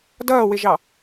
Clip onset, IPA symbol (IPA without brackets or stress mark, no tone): d